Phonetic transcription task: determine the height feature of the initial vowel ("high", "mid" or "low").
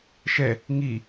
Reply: mid